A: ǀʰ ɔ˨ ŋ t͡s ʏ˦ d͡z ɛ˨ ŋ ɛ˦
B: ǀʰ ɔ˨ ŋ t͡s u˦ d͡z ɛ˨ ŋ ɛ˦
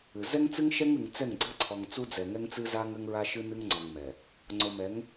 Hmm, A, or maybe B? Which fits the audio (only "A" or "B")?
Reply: B